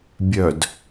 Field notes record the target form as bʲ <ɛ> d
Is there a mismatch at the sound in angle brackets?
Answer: yes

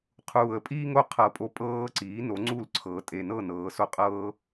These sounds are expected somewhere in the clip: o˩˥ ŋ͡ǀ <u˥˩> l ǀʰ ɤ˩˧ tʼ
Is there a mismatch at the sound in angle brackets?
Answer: no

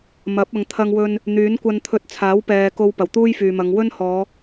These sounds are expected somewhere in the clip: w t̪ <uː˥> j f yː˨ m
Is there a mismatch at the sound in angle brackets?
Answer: no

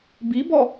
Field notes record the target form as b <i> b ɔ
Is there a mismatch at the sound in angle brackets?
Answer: no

